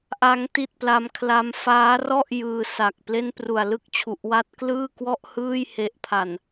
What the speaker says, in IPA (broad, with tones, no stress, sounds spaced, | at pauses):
ʔ a˦˥ ŋ t i˥˩ t̚ p l a˦˥ m kʰ l a˦˥ m f aː˦˥ r ɔ˥˩ ʔ j ɯː˧ s a˨˩ k̚ p l e˥˩ n p r u˨˩ a̯ l ɯ˥˩ k̚ t͡ɕʰ u˨˩ ʔ w a˦˥ t̚ k l ɯː˥˩ k w ɔ˥˩ ʔ h ɯː˥˩ j h e˨˩ ʔ pʰ a˨˩ n